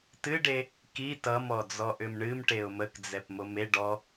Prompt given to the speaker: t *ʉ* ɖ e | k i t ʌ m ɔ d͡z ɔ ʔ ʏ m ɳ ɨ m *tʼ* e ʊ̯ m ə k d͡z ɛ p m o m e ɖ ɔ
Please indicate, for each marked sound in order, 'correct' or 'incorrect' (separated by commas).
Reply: incorrect, incorrect